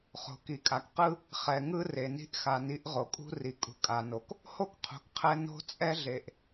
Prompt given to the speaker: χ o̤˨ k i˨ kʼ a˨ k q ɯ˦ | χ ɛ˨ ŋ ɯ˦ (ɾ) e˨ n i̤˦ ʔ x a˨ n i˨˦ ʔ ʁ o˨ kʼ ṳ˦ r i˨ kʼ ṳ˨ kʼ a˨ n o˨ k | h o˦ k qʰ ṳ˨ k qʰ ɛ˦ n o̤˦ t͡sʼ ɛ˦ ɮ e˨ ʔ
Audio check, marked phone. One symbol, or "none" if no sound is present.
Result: r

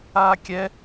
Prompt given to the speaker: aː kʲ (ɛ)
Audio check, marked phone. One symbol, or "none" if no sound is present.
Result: ɛ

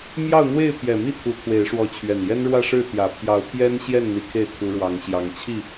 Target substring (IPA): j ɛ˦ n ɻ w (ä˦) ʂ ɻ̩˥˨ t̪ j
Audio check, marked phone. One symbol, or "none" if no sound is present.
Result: ä˥˨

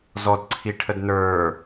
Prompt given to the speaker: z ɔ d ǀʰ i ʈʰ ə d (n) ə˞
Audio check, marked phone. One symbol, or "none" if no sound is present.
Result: n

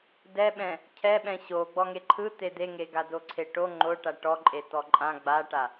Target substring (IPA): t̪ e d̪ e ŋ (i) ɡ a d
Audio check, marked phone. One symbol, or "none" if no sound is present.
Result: e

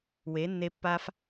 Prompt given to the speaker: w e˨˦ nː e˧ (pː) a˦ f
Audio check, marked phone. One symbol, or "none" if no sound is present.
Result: pː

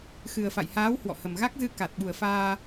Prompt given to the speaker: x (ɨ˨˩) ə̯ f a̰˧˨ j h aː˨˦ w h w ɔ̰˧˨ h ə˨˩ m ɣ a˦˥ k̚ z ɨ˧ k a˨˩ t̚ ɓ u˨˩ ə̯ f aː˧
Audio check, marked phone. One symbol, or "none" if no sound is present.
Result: ɨ˨˩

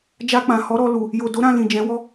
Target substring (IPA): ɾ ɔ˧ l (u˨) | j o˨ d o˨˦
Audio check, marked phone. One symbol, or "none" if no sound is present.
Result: u˨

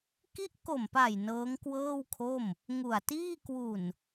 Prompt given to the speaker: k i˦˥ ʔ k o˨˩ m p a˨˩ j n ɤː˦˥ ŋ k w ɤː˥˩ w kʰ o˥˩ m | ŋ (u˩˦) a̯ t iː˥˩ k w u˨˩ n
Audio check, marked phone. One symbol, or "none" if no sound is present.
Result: u˨˩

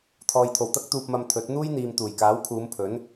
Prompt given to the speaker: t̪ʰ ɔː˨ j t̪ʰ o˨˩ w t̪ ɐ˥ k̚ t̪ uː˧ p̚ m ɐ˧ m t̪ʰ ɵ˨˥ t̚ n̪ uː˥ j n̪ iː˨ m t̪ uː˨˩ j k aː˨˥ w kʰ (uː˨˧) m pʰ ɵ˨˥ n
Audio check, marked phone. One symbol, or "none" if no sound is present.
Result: uː˨˧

